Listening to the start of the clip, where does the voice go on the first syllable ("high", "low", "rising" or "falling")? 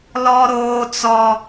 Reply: high